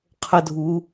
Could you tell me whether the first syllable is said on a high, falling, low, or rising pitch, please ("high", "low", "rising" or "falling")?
high